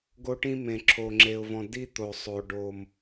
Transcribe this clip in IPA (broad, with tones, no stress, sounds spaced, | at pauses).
ɡ o˦ ʈ ĩ˦ m ẽ˨ ǁʰ o˨ ŋ͡ǁ e˨ ʊ̯ v ɔ̃˨ d i˦ t̪ o˨ sˤ o˨ ɖ o˨ m